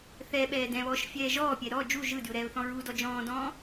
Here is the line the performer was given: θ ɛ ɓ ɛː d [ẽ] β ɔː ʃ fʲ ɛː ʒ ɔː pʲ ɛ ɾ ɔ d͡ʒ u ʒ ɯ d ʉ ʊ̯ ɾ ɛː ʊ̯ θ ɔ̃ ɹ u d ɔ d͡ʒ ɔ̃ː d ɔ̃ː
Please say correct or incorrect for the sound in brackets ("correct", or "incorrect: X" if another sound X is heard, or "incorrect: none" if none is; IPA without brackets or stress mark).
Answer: incorrect: ɛ̃